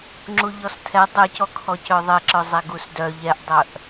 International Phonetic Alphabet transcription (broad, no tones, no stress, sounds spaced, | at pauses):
ŋ͡ǁ u ʎ ɔ s tʰ ɛ dˤ ɛ c ɔ kʰ ɔ c œ ðˤ ɛ ǁ œ zˤ ɛ ɡ u s d œ ʎ ɛ ʔ dˤ œ ʔ